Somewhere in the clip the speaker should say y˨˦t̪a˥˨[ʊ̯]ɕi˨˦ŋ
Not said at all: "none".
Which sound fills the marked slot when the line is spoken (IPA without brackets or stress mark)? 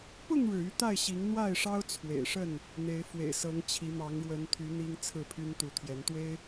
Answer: ɪ̯